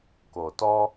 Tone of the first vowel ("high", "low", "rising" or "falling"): low